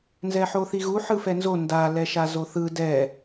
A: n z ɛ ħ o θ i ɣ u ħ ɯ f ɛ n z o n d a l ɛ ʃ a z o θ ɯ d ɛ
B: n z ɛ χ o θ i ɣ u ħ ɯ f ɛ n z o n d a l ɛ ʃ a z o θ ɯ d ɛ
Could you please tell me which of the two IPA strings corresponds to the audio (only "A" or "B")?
A